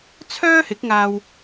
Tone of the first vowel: high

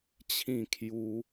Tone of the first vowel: falling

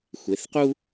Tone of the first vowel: rising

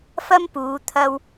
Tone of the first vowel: high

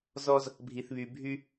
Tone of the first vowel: high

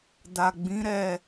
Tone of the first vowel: low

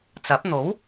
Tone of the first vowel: rising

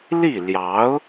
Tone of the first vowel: falling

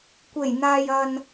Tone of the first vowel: low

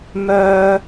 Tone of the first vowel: high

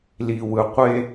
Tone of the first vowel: low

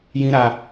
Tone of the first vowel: high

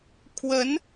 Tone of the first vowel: rising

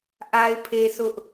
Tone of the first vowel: high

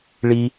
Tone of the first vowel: high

